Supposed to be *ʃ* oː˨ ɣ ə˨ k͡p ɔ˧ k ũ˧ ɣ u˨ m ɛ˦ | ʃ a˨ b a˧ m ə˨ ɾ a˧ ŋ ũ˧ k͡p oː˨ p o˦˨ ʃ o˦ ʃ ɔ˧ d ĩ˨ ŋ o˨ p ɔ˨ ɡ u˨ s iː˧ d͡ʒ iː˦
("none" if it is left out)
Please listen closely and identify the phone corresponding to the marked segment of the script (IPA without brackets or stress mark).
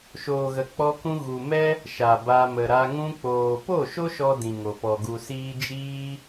ʃ